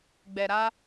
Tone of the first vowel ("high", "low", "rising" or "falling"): low